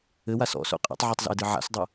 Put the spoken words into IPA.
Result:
ɘ w a s ɔ̰ s o̰ qʼ ɛ̰ tˤ ʕ ɛ tˤ z a̰ e̯ d ɨ ʕ a̰ s dˤ ɐ

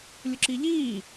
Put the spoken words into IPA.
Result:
lʲ ʊ ǁ i ʎ iː

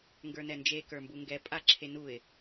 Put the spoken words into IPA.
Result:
ŋ ɡ ə˞ n ɛ n d͡ʒ e k ə˞ m b u ŋ ɡ ɛ pʼ a ǁʰ e n u ɪ̯

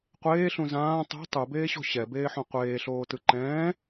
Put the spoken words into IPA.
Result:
qʷ eː ɬ ũ z ãː tˤ o̤ tˤ u b eː ɕ o̤ ɕ ɛ b eː ħ õ qʷ eː ɬ oː t ɯ ǃ ɛ̃ː

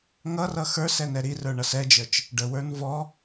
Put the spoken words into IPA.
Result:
ŋ ʌ r ʌ x ə˞ s ɛ n ɛ ɾ i r ə˞ ɳ ʌ s ɛ d͡ʒ ə˞ t͡ʃ | ɖ ə w ə˞ n v ɔ

